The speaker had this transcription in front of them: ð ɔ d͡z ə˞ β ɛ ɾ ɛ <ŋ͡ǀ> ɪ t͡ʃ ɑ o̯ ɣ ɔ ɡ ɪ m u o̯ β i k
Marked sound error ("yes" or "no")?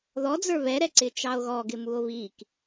yes